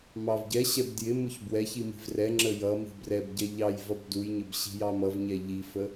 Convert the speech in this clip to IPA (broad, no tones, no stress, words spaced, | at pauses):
mɑvɟɛɕɛb djɪ mʊçbwɛçi mi̤vrɛŋ͡ǁə jʌmi̤ brɛbɟɛ ʎɑj vʌbdujɲəb ɕi̤jɑmʌvɲɛ ʎifə